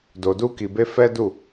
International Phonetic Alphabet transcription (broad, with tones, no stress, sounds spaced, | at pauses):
d o˨ d u˧ k i˨ b e˧ f ɛ˦ d u˦˨